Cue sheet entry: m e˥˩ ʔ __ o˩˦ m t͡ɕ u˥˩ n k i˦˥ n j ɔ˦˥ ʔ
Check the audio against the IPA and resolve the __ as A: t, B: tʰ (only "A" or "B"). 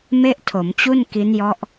B